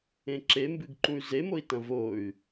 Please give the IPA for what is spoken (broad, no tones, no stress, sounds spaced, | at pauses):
ẽ ǁ e m b ɨ ɡ ǃ ũ y̯ z e m o i̯ t ɐ̃ v o y̯